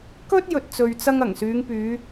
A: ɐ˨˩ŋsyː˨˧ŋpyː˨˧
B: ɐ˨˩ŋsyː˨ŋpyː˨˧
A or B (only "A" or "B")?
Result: A